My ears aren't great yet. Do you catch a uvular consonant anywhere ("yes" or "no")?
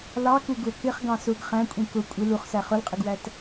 yes